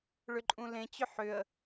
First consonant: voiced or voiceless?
voiced